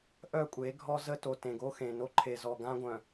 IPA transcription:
ʔœ˦˨kʷʼe˨˦ɡʱɔ˦ zə˦to˨ tẽ˨ɡo˦xẽ˨no˦ ǃʰe˨zɔ˨ ɡã˦ɡʷœ̃˨

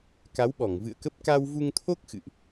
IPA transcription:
ka˨˦wɓɔ˧˩ŋ vɨ̰˧˨ə̯kə˦˥p̚ ka˧wvu˧ŋt̪ʰo˦˥k̚ xɨ̰˧˨ʔ

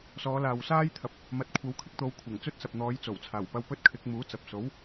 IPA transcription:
sɔː˨˧laː˨wsaː˥jt̪ʰɐ˨p̚ | mɐ˨˥t̚ kʷʰɐ˨˥wkʰɪ˧k̚t̪o˨˧w kʷʰɐ˨˩ŋt͡sɵ˥t̚sɐ˨p̚ n̪ɔː˨˧jt͡so˨˩wt͡sʰaː˨˩wpɐ˧w pɵ˥t̚kʰɪ˨˥k̚muː˨˥t͡sɐ˨p̚ so˨˥w

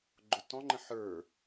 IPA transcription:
ɡ͡ǃʊtɔ̃ŋ͡ǃə̃ ħə˞

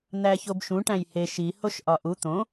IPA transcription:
n̪æçobʃũ ʈæ̃jhe ʃi hoʃʔɒʔu t̪õ

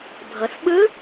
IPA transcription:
bʱɤ˩θɓɯ˧˥

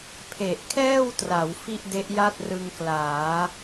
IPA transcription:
pʰe˨˩ʔkʰɛː˥˩wtra˩˦w fi˥˩ʔde˦˥ʔja˥˩t̚ rɯ˧ŋklaː˩˦

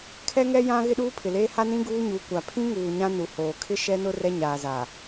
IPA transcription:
kʰɛ˦ŋɛ˦ jã˦ ɣɪ˦ɗuː˦pʰɪ˨leː˦ ha˦nĩ˦ ɡuː˦ɲu˨˦kʷa˨ pʰĩ˦ŋuː˨ ɲã˦nu˨ hoː˨ kʰɪ˦ ʃɛ˦nʊ˦ rɛ˦ ɲaː˨za˨

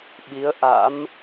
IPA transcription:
ɓi˨˦ə̯ʔa̰˧˥m

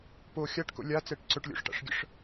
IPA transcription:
po xʲaʈko̰ lʲat͡sɛʈ ǀɵʈlʲo̰ʂʈa̰ʂɡʲə̰ʂ

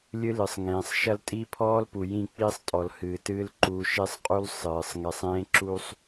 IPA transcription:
lʲɨ˦lɨ˨sˤŋẽː˨sˤ ʃɐ˦ltʼi˦pʰɔː˦l pu˨jĩ˦˨k͡piː˦sˤ tʼɔ˨lhɨː˨tɨː˦l ǃu˨˦ʃe˦sˤqʼu˦l sˤɨː˨sˤ ŋɛ˨sˤẽː˦ǁu˦sˤ

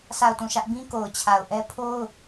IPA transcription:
sʰa˦˨ʊ̯tũ˦˨ʃä˦ʔ bĩ˦ ko˨ʊ̯t͡ɕʰa˨ʊ̯ʔɛ˦ pʰo˦ʊ̯

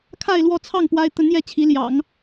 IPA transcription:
kʰa˥˧ɪ̯lwɔ˥˧t͡sʰɑ˥˩ŋ pwa˥ɪ̯ t̪ə˧˥njɛ˧˥ t͡ɕʰi˧˥ljɑ̰˨˩˦ŋ

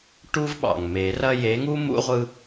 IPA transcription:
ʈu˦vɓɑ̰˩ŋme˨˩˦rɐ˦ je˨˦ŋu˦ mṵ˦ʁʷɯ˦

